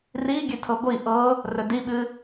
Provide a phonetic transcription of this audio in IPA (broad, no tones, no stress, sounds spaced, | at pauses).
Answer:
r i ɡʲ ʉ tʰ ɤ ɡʷ i ʔ ɤ | r ɵ d i ɓ ɨ